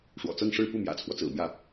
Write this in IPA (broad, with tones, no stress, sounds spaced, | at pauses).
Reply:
ʂ w ɔ̰˨˩ t͡s ɤ˥˧ ŋ ʂ ɻ̩˥˧ p u˥˩ m j ä̰˨˩ t͡sʰ w ɔ˦ t͡s ɹ̩˨˩ m j ä˥˩